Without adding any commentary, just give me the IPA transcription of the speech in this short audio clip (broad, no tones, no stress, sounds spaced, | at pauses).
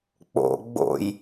k͡p o̰ ɡ͡b o̰ j